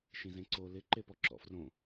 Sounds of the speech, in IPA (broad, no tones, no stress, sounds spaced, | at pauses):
ʃ ĩ z ẽ ǀ o l ɪ ǃ e p ɔ ǁ ɔ̰ f r õ